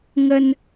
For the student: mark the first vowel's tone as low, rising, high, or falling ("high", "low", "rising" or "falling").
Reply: high